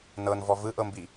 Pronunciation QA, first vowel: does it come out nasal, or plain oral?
oral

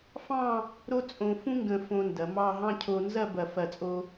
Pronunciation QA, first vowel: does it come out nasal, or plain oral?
nasal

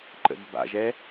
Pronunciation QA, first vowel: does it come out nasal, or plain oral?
oral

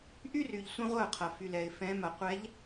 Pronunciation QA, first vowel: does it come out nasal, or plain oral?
oral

